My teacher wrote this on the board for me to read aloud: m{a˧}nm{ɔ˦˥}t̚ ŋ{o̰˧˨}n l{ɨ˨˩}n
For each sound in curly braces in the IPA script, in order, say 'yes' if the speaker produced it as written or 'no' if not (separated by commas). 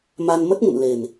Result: yes, no, no, no